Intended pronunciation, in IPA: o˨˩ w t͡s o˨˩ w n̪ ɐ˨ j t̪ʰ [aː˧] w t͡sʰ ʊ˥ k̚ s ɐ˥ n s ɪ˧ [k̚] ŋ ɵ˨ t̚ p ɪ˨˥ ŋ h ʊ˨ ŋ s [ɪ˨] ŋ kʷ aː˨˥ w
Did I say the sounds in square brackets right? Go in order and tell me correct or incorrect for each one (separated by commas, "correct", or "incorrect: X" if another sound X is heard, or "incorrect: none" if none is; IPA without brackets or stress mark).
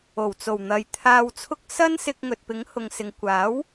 correct, correct, correct